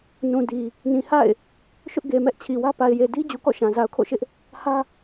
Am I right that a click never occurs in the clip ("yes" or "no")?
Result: yes